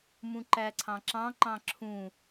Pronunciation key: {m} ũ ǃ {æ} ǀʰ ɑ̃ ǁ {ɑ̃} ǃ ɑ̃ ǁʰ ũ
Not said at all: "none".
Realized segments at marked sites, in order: m, æ, ɑ̃

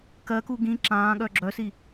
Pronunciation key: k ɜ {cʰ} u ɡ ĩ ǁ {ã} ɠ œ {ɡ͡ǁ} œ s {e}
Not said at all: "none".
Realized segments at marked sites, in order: k, ãː, ɡ͡ǁ, i

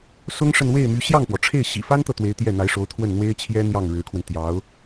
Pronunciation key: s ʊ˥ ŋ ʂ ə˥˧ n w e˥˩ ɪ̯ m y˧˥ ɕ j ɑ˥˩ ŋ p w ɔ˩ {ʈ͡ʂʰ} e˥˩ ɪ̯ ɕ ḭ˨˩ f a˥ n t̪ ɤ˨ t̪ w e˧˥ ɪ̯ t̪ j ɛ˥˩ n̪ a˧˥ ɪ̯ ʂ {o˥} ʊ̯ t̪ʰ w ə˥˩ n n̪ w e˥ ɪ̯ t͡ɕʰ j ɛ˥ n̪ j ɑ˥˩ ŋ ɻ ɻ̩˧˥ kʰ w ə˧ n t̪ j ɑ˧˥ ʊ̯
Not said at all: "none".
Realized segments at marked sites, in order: ʈ͡ʂʰ, o˧˥

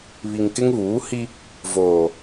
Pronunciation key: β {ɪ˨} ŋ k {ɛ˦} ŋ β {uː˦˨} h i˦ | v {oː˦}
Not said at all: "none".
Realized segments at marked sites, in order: i˨, ɪ˦, uː˨˦, oː˨

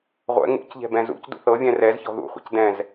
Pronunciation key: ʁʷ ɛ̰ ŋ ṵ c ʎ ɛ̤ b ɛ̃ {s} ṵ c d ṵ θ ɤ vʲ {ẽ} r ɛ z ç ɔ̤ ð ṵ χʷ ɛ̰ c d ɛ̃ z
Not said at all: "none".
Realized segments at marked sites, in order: z, ɛ̃

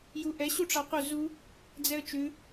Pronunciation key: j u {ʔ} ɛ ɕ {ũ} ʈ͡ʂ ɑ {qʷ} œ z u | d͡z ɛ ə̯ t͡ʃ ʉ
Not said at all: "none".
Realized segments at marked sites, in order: ʔ, u, qʷ

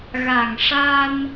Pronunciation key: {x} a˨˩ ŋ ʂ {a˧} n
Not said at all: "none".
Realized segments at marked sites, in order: ɣ, a˧

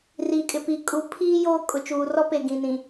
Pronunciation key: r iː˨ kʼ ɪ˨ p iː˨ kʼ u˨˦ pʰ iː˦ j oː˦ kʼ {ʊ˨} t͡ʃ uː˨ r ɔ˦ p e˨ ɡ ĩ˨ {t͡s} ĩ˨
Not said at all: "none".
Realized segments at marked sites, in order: ʊ˨, n

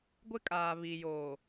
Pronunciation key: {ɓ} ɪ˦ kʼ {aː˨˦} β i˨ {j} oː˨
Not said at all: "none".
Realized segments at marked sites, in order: ɡʷ, aː˨, j

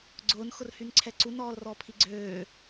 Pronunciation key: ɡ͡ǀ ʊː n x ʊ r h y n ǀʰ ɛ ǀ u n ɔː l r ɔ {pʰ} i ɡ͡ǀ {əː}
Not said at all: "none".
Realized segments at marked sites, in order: pʰ, øː

